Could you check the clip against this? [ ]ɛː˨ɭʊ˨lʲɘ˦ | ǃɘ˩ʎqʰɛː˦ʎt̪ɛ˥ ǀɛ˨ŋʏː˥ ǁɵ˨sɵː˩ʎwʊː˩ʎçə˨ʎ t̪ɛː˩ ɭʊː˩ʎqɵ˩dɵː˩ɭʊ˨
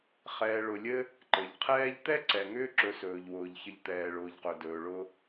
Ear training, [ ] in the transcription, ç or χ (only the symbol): χ